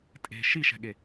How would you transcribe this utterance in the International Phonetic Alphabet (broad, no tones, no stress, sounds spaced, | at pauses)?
tʼ e̤ ʃ i ʃ ɛ̤ ɠ e